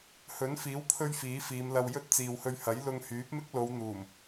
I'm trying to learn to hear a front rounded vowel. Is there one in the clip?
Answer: yes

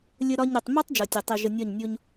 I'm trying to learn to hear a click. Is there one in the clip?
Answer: no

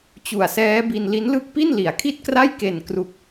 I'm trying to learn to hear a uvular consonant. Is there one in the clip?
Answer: no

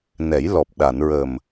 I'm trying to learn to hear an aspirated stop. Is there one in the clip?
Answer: no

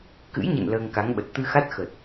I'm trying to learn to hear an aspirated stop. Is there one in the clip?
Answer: no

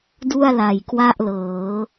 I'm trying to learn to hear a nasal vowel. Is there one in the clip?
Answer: no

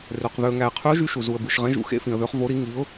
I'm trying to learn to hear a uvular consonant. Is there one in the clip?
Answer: yes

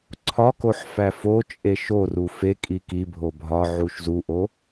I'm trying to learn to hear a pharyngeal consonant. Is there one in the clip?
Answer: yes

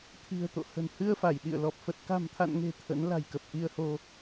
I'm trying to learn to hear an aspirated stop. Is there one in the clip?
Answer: yes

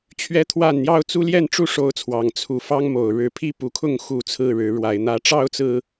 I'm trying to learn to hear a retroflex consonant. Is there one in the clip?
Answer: yes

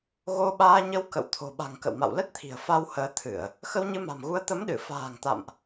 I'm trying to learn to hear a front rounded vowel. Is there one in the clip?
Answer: no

